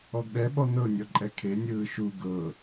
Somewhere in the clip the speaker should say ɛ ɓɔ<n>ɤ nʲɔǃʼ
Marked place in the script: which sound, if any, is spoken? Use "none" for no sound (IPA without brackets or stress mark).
n